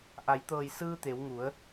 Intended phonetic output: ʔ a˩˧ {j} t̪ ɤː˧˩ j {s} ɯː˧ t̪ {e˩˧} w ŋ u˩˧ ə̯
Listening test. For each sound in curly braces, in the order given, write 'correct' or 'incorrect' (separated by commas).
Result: correct, correct, correct